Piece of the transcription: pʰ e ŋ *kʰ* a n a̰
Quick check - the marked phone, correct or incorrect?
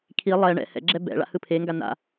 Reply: incorrect